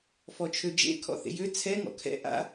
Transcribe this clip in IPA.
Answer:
f ɔ t͡ʃʰ ø d͡ʒ ḛ kʰ ɔ̰ θ ḛ j ø t͡sʰ ɛ ŋ ɔ̰ kʰ ɛ̰ ʔ a̰

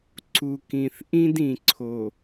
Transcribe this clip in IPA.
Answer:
ǀ u˨ k ĩ˨ θ ʔ ĩ˦ d ĩ˨ ǀʰ o˨

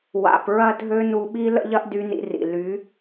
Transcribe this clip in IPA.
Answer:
w a̰˧ p ɹ ɐ˦ dʱ ø˦ n u˧ ɓ i˦ l ə̰˦ ʎ ɐ˦ ʔ d y˧ n ḭ˧ r ḭ˨ l y˨˦

